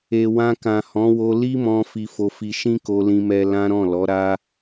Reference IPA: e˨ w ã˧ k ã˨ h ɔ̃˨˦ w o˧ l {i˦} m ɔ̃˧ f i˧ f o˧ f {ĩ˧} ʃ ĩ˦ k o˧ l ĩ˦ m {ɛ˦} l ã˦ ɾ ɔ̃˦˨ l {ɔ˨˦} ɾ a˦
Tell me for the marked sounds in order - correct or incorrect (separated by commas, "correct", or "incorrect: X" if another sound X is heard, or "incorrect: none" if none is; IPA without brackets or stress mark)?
correct, incorrect: i˧, correct, correct